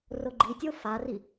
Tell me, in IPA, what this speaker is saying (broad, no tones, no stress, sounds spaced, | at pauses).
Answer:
r o ɡ͡ǃ i tʲ o f a r i